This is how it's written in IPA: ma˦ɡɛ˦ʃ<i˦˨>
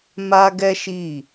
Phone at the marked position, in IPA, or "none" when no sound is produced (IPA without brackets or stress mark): i˦˨